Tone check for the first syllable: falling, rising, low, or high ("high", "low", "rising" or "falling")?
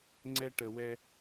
high